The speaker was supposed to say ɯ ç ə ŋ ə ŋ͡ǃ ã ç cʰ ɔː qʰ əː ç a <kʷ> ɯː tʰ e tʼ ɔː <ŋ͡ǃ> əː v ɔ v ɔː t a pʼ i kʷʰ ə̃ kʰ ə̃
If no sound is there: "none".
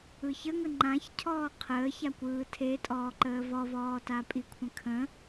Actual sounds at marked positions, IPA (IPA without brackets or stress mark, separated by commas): kʷ, ǃ